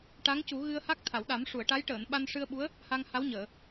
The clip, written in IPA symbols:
ʈ a˧˥ ŋ c u˨˩˦ ɣ ɨ˧ ə̯ h a˦˥ k̚ t̪ʰ a˨˩˨ w ɗ a˨˩˦ m ʂ u˨˩˨ ə̯ ʈ a˧˥ j ʈ əː˨˩˨ n ɓ a˧ n ʂ ɨ˧ ə̯ ɓ u˧˥ ə̯ | h a˧ ŋ h a˧˥ w ɲ əː˨˩˨

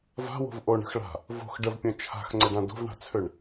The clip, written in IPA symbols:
v a̤ w o̤ v ʔ o ɳ ə̤ x ɭ a̤ | v o̤ x ɖ ə v pʲ õ t͡ʃʰ a̤ x ŋ͡ǀ ə ɖ ã d o̤ v ɳ a̤ t͡sʰ ø ɳ

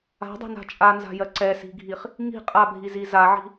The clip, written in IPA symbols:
a̤ dˤ ɛ̤ n a̤ t͡ʃʼ a n z a̤ j ɜ ǀ ɛ s i̤ ɡʱ i χ | ŋ i̤ qʼ a bʱ i z i z a ʕ i̤

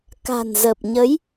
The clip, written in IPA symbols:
k a̤˨˩ n z ə˨˩ p̚ ɲ ə˨˦ j

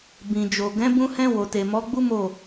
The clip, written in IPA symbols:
b ĩ˨ d͡ʒ o˨ ɡ ɛ̃˨˦ b ũ˧ h ɛ̃˧ w o˨ t e˨ m ɔ˨˦ ɡ͡b u˦ m o˦˨

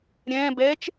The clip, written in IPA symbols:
ɾʲ ɛ̃ː b ɛː t͡ʃ

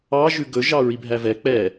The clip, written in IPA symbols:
ɑ ʒ ʉ ɡ ɵ ʒ ɑ ɹ i bʱ æ v ɛ k͡p ɛ

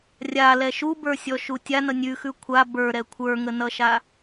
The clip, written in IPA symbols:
rʲ a l ɛ ʃ u b ə˞ sʲ ɔ ʃ u tʲ a n ʌ nʲ ʉ x ʉ kʷʰ a b ə˞ ɾ ɛ kʷʰ ə˞ ŋ ə n ʌ ʃ a

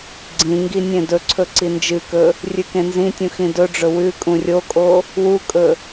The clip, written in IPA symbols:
ɡ͡ǀ ĩ ŋ ɡ i nʲ ẽ d ɵ ǀʰ ɵ ǀ i n d͡ʒ ɨ k ɵ | rʲ ʉ k ẽ n z ĩ tʲ ũ x ĩ d ɵ ɖ͡ʐ ɵ w ʉ kʼ ũ rʲ o kʼ o | w u kʼ ɵ

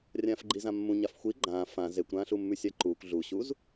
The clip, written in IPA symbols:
rʲ ãː f ɡ͡ǃ i z ã mː ũ ɲ a f xʷ i ɡ͡ǃ ãː f ã z e kʷ ɾ ãː ɬ u mː ʉ sʲ a ǃ uː kʷ ɮ u ɕ u z

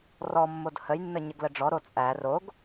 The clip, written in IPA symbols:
r ɔ mː o d h ə j nː ə ɲ ə ɡ l ə ɖ͡ʐ ɔ ɾ o t͡sʼ æ r o ɡ

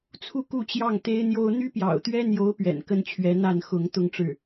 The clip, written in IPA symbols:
t͡sʰ u˥˧ k u˥˧ t͡ɕ j ɑ˥˩ ŋ t̪ e˥ ɪ̯ n̪ j o˥ ʊ̯ n̪ y˥ p j ɑ̰˨˩ ʊ̯ t̪ ɥ ɛ˥ n̪ j o˧˥ ʊ̯ p ɥ ɛ̰˨˩ n k ə˥ n t͡ɕʰ ɥ ɛ˧˥ n̪ a˥˩ n x ʊ˧˥ ŋ t̪ ʊ˥˧ ŋ ʈ͡ʂ ɻ̩˥˩

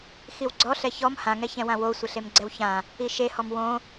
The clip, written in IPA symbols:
x i w ɡ͡ǀ ɔ ɬ ɛ ç ɔ m h ã ŋ ɛ ç ɛ̃ w ã w o sʷ ɪ ɬ e m ɡ͡ǀ ɛ w ç ã | i ʃ e h ɔ m w õ

